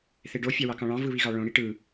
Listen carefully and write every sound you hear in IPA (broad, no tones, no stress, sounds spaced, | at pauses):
θ e ɖ o fʲ ɑ w ɑ k ɑ̃ ɭ ɑ̃ v ɯ β i ɣ ɑ ɭ õ ɽ i ʈ ɯ